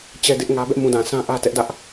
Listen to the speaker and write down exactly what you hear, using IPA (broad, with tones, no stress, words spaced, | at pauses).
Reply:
t͡ɕɛ˦dɪ˦ʔŋä˦ bɛ˦ʔmũ˨dã˨sã˦ ʔä˦tɛ˦ʔdä˦ʔ